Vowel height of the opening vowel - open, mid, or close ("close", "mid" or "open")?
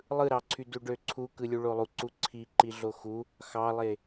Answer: close